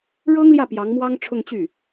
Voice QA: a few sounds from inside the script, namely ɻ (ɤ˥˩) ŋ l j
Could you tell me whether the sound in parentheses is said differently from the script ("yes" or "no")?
yes